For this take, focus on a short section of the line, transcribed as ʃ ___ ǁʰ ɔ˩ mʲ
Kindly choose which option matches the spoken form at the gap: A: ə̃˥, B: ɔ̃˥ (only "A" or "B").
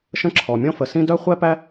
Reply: A